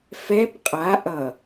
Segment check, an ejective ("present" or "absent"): present